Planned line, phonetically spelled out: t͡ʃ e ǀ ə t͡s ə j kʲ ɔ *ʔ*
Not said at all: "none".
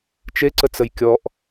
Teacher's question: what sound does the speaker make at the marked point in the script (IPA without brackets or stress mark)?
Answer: ʔ